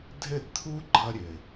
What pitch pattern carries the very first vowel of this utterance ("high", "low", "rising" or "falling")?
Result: falling